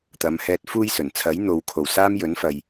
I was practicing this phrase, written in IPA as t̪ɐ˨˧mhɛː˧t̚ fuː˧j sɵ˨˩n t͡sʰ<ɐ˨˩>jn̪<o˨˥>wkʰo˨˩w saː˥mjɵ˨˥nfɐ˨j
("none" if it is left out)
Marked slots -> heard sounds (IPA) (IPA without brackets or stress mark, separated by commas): ɐ˨˥, o˨